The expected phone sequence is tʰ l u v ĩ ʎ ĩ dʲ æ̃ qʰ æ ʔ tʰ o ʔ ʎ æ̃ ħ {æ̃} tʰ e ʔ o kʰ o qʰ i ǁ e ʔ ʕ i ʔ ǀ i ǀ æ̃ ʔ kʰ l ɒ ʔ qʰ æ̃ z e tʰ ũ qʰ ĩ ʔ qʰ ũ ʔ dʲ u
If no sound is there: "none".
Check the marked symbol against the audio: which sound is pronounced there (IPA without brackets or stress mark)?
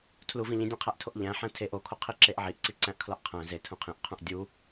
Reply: æ̃